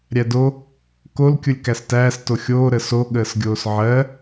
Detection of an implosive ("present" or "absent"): present